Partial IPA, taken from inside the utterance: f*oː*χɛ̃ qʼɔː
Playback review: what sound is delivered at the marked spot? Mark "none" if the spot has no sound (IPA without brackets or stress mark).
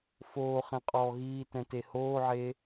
oː